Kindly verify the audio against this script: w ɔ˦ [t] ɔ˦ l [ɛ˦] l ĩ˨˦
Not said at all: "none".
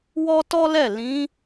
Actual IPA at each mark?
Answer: t, ɛ˦˨

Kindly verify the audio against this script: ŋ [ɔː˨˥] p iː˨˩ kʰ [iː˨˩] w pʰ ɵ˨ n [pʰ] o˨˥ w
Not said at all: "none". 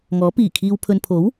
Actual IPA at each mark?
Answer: ɔː˨˥, iː˨, pʰ

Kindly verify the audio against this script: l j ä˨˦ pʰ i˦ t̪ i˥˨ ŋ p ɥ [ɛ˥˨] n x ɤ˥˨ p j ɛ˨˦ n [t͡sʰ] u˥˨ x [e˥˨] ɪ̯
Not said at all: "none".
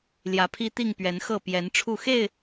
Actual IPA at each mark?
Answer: ɛ˨˦, ʈ͡ʂʰ, e˥˨

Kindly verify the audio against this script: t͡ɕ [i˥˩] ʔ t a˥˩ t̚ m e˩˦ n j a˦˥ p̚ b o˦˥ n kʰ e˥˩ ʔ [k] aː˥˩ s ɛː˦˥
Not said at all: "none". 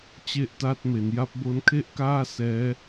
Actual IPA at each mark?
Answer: e˥˩, k

